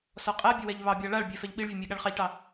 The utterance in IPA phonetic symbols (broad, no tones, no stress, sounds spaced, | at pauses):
s ɔ qʼ æ bʲ ɘ w ɛ ʎ β ɑ bʲ ɑ ɭ a ɭ bʲ ɛ f ɛ ʎ ɓ i ɭ vʲ ɘ mʲ æ ɠ a ɭ χ ɑ ʎ ʈ ɑ